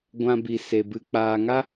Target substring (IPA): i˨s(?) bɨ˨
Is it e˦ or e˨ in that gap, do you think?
e˨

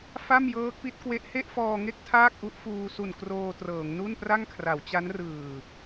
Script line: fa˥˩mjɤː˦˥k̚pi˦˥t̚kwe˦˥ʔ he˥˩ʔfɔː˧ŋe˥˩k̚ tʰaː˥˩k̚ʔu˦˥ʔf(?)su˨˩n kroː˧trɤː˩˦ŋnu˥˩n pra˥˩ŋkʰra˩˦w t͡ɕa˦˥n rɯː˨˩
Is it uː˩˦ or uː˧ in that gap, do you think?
uː˧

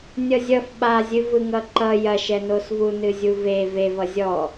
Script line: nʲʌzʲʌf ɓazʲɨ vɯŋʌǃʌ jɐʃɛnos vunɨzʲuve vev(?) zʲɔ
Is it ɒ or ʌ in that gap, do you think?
ʌ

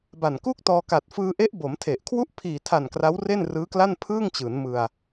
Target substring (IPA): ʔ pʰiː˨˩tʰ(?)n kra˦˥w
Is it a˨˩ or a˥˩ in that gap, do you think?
a˨˩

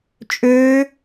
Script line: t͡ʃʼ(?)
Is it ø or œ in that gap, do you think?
ø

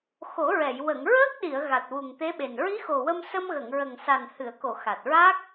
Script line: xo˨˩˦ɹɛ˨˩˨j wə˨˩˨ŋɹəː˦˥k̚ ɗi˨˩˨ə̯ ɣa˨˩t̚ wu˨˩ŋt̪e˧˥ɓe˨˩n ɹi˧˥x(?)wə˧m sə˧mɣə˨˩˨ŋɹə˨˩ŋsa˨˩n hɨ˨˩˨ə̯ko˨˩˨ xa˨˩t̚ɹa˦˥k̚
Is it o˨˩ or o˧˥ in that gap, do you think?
o˨˩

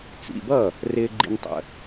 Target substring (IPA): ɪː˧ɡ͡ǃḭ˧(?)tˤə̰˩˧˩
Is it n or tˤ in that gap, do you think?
n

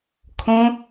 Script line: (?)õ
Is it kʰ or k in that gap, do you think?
kʰ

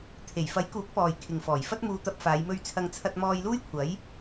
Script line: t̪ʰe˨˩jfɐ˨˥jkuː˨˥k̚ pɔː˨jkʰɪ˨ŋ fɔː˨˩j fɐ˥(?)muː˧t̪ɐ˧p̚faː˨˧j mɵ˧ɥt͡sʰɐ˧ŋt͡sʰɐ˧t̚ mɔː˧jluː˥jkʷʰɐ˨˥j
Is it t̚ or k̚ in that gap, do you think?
t̚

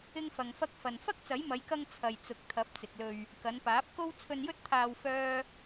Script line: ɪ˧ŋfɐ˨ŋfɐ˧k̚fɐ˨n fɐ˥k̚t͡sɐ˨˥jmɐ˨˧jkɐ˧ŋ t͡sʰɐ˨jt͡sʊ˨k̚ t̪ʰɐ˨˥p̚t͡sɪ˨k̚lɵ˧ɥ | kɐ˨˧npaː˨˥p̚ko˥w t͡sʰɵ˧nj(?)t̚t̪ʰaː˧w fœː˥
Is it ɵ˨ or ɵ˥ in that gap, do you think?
ɵ˥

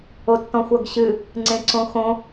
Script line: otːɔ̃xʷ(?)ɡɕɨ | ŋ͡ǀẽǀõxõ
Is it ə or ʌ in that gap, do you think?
ʌ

